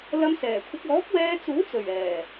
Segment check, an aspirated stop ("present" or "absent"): present